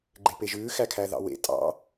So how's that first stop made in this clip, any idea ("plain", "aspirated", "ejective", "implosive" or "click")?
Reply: click